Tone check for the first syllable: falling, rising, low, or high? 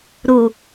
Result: low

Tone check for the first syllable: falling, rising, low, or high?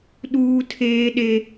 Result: high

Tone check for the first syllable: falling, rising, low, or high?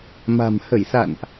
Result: low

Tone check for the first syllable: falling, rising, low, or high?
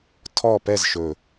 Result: falling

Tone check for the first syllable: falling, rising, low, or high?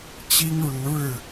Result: high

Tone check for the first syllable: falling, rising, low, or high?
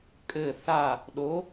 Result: falling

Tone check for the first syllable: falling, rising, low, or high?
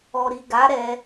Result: low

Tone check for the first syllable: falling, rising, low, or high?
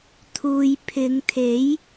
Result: low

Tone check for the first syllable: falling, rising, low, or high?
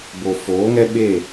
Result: low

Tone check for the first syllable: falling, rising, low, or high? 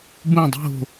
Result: falling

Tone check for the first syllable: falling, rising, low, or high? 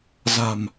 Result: low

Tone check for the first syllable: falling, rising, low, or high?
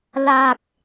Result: low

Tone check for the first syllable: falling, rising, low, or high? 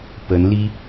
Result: rising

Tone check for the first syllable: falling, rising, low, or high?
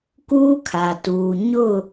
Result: high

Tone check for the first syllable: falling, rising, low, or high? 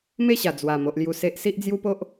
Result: falling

